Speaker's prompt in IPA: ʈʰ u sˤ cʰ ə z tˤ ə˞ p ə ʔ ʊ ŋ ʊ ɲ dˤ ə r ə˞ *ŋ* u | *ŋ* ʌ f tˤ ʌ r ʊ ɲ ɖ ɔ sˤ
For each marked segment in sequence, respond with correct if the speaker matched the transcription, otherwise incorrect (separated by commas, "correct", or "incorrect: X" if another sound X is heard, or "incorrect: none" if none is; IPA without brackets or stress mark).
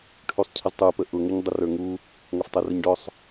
correct, correct